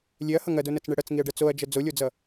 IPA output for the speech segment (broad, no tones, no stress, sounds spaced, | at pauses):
lʲ e ɐ̯ h ʌ ŋ ɐ d o n ɐ t͡s ɳ ɛ ɽ ɐ t͡s ŋ i ɐ̯ ɖ ɐ t͡s o ɐ̯ d͡ʒ ʌ d͡z o lʲ o d͡z ʌ